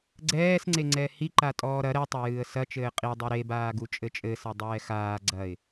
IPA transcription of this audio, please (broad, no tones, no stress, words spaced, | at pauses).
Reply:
ɡ͡ǀɛːsŋ͡ǀeŋ͡ǀɛ hiǃa tʼɔːɾɐ ɾɛtˤɛ jɨːə̯sɐt͡ʃɘː qʼidˤe ɾebaː ɡut͡ʃʼɘt͡ʃʼɘsɐ dˤɛːxaː ɡ͡ǀɐɪ̯